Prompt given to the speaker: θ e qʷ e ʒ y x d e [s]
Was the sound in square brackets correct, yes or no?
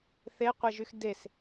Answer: yes